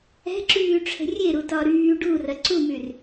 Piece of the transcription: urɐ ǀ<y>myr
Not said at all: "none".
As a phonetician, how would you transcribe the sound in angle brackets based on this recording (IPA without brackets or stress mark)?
u